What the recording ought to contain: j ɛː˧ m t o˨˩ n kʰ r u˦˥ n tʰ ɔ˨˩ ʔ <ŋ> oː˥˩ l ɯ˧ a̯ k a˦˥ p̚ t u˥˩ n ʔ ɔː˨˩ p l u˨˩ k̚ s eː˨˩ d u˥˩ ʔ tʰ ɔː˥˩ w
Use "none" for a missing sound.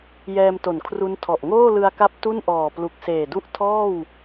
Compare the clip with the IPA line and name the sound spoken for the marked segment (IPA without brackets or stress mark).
ŋ